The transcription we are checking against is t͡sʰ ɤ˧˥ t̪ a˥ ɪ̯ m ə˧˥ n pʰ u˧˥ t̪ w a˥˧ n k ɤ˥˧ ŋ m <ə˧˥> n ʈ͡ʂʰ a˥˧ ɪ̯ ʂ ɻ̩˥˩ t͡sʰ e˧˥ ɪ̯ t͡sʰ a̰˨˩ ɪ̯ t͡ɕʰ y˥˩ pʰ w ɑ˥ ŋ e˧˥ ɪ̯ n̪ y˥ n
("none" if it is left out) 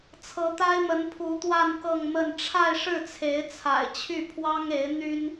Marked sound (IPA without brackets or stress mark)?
ə˥˧